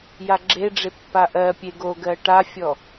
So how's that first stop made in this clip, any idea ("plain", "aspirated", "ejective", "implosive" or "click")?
click